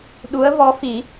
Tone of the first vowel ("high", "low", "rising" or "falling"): rising